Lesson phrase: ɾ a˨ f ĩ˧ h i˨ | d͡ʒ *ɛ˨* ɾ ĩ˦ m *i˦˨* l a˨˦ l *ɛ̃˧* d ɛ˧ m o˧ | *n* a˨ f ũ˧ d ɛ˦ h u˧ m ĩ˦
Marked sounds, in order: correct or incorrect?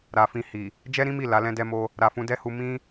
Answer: incorrect: ɛ˦, correct, incorrect: ɛ̃˦, incorrect: ɾ

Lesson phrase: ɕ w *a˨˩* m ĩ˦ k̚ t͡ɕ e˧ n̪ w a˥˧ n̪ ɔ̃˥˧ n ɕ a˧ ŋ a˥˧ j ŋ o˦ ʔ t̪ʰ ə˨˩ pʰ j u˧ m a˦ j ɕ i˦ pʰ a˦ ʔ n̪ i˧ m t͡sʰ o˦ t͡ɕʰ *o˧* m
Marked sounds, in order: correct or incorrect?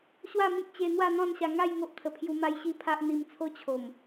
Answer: incorrect: a˥˧, incorrect: o˨˩

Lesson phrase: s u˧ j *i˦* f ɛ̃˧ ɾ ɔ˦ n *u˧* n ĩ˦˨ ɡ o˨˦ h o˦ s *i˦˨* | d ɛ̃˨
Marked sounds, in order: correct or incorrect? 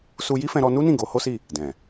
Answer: correct, incorrect: u˦, correct

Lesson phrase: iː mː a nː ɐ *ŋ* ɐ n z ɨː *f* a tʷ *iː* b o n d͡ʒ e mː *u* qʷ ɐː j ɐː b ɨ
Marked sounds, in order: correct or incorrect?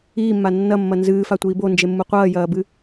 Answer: incorrect: mː, correct, correct, correct

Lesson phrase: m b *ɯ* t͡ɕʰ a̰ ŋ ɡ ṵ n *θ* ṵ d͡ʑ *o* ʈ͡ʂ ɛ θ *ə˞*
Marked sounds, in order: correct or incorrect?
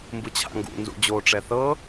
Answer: correct, incorrect: z, correct, incorrect: ɤ

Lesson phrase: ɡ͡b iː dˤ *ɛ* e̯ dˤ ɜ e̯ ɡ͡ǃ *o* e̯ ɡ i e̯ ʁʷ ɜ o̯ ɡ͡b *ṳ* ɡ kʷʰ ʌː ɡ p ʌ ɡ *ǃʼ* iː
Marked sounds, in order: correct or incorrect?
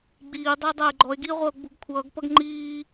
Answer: correct, incorrect: ɔ, correct, incorrect: ŋ͡ǃ

